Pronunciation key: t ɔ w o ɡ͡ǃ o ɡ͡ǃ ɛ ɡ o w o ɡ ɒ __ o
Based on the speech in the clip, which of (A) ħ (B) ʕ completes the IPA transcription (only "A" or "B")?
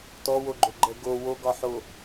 A